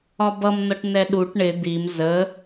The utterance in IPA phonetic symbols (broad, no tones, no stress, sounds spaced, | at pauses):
ɒ b ʌ m n̪ ʌ ʈ n ɛ ɗ u ʈ ɳ ɪ d̪ i m z ə